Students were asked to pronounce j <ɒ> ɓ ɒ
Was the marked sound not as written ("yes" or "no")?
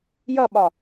yes